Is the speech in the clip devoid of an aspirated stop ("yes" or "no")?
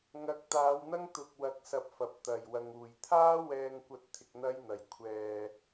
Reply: no